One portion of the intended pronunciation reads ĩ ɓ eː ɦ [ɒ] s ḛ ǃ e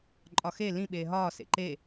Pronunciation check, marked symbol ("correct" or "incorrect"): incorrect